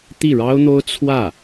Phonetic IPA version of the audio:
t̪ i˥˩ ɻ ɑ˥ ʊ̯ n̪ o˥ ʊ̯ t͡sʰ w ä˥˩

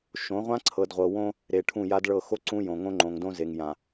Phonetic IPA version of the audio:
ʃ õ˨˦ ʁʷ ã˦ ǀʰ ɤ˨ d ʁʷ ɤ˨ w õ˦ | ɾ e˨ ʈʰ ũ˦˨ j a˦ d ɭ ɤ˦˨ x o˦ ǀ ũ˦ j õ˨ ŋ õ˦ ŋ͡ǃ õ˨ ŋ d õ˦ z e˨ ŋ j ã˨

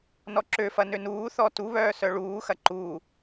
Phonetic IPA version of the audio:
n ɔ ǁ ø f ɐ n ø n uː θ ɔ t u β œː s œ ɭ uː x ɐ ǃ u

